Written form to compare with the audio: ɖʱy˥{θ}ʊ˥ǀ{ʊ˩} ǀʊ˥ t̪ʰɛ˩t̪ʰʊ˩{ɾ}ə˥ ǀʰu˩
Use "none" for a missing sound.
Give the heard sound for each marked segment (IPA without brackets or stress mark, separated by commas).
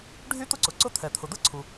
t̪, ʊ˩, d̪